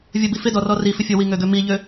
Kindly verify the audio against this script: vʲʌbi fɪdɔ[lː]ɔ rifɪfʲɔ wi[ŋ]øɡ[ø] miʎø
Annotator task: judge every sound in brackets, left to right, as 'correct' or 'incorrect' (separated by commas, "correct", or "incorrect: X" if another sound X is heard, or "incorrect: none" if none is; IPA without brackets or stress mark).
incorrect: r, correct, correct